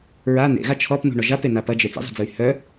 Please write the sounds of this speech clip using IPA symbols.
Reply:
ɹa nḛɣa t͡ʃʰɔpnṳ ɳɔʒapena pɐd͡ʒe t͡sḭzˤi̤d͡zɯy̯ hœ

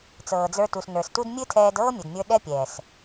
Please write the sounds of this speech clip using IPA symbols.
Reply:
t͡sɤː˨d͡zə˞˧tu˨s nə˞˨stu˦d mʲɨ˦tʰɛː˧d ɤː˦mʲɵ˨dmʲə˞˧ ɗɛ˦pʲɛː˨s

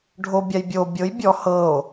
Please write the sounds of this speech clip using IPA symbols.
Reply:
ɖʱobʲaj bʲo bʲɤj bʲɔ hɤo̯

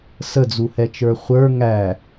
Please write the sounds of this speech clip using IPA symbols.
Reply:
səd͡zuhɛt͡ʃə˞ χʷə˞ ŋæ

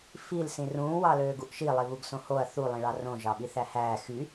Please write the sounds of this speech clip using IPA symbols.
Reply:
fil sĩrũː wɑløːɡuʔʃi lˠiβuɡsõhoɐ̯ θu lˠĩɭɑrõ ʒɑɓiθæhæː xy

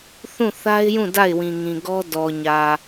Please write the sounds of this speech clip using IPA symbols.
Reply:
θũ˦˨θa˦ɪ̯jũ˦˨ da˦˨ɪ̯wĩ˨ŋĩ˨ɡɔ˦ dɔ˨ɲä˨

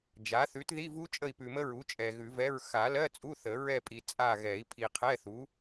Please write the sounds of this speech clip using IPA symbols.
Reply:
d͡ʒa˩˥θʉ˩˥t ði˧˥˧vu˦˥ t͡ʃʼə˦˨i̯pʉ˨mə˦˥ɹu˩˥ t͡ʃʼɛ˨ɣʉ˨˩˦vɛ˧˥˧ɹ xa˨˩˦lɜ˧˥˧ t͡sʼu˧˥˧θə˨˩˦ ɹɛ˦˨pʼi˨ t͡sʼa˦˨ɣɛ˨˩˦i̯ pʰi˨qʰɛ˧˥˧θu˩˥

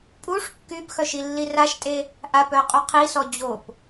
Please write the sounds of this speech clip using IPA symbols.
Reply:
pʼuʂ kːybxœʃ ilːiraʃtʼe | ʔapœ qʼuqʰisɔ d͡ʑop

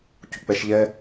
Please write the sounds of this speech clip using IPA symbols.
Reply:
cṳk͡pɛʃʎɛ

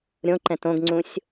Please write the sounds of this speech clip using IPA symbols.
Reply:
ɾʲõǃɛ̃t õɡŋ͡ǀũsʲ

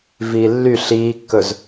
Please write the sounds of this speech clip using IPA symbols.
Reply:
viːlːy ɬiːkːɵz

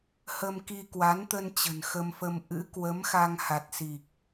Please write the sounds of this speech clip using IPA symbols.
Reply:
hə˧mki˧kwa˨˦nt̪ə˧n t͡ɕə̤˨˩nxə˧mfə˧m ʔɨ̰˧˥kwə˨˦mxa˧ŋ ha˨˩t̚si˨˩k̚

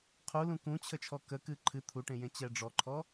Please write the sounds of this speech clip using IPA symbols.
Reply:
qʰu lũkũt͡ɕʰə t͡ʃʰɔkəkɨ ǃʰɨ t̪ʰuʈẽ jẽt͡ɕɛɖ͡ʐɔǃʰɔ

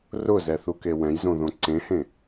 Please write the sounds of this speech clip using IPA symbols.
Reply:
rʊzɛθuke wɛ̃jzõðõ ǀẽhẽ

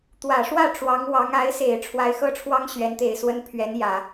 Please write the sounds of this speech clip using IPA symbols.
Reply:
t̪wä˨˩ʂwä˥˩ ʈ͡ʂwɑ˧˥ŋwɑ˧˥ŋ a˧˥ɪ̯se˨˩ɪ̯ ʈ͡ʂʰwa˧˥ɪ̯xɤ˥˩ʈ͡ʂʰwɑ˥ŋ ɕɥɛ˧˥nt̪e˨˩ɪ̯swə˥n pʰɥɛ˧˥n jä˨˩˦

